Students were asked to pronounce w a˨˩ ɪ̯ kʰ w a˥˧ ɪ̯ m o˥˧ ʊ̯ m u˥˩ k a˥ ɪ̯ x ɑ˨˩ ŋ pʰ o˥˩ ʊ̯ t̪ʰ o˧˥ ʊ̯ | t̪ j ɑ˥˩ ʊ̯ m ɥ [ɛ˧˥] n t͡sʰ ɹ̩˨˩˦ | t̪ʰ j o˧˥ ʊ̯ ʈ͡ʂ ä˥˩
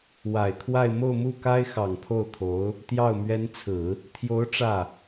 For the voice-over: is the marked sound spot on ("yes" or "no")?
yes